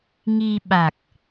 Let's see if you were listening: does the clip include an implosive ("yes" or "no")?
yes